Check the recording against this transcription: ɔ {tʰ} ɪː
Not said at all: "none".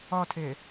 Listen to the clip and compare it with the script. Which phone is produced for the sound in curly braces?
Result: tʰ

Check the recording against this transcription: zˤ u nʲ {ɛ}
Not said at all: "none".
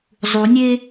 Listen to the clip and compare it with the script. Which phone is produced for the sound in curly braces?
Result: e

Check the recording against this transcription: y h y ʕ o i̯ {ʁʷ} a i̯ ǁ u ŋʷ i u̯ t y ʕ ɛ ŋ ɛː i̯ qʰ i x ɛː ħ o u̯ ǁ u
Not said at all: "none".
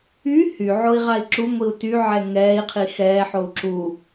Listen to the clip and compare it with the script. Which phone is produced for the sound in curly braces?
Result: ʁ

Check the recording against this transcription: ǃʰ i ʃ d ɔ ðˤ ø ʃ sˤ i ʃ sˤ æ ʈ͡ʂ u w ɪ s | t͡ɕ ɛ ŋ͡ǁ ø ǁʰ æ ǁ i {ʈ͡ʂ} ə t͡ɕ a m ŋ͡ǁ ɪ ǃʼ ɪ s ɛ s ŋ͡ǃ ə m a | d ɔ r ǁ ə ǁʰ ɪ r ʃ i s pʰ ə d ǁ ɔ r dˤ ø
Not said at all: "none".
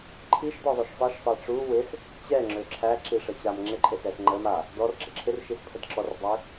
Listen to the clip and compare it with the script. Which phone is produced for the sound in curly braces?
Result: ʂ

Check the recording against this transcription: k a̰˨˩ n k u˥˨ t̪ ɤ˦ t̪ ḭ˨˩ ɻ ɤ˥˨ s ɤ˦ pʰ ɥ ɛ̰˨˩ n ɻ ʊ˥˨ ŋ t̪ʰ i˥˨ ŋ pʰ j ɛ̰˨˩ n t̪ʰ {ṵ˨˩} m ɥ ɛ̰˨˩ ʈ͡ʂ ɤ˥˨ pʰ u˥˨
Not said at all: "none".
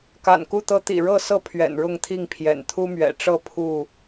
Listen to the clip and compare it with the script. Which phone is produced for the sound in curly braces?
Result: u˦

